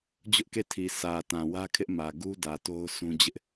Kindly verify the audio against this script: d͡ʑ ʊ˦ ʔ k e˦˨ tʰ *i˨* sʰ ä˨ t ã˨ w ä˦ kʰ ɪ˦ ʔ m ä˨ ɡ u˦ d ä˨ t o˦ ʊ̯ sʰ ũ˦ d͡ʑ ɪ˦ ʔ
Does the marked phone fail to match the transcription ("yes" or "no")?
no